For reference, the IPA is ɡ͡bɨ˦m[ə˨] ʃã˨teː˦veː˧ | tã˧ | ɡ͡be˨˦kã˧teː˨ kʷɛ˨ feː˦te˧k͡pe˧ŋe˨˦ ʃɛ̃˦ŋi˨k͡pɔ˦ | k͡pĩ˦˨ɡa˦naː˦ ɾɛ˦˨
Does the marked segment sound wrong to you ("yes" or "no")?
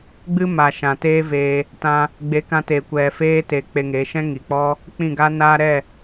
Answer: yes